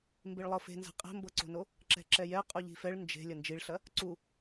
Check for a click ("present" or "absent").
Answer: present